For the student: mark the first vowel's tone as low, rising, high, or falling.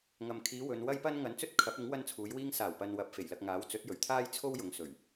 low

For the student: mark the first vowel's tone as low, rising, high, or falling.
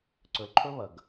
low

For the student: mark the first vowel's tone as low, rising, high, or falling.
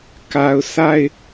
low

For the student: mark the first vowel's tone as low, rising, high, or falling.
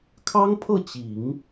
high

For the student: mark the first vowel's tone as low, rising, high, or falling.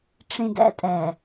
low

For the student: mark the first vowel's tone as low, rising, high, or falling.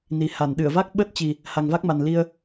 low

